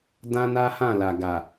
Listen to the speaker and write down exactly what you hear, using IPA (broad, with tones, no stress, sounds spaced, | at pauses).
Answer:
d ã˦ n a˦ h ã˦˨ l a˨ ɡ a˨